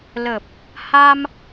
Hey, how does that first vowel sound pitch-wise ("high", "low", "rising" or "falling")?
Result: low